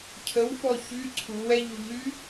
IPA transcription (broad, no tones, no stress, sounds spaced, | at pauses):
cʰ ə w f ɔ ç y ǀʰ u w ɛ ʎ u ʎ y